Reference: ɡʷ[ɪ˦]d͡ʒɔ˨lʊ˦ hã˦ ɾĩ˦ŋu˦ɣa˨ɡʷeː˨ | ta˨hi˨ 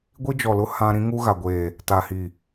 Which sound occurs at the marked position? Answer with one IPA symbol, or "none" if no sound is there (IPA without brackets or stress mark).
i˦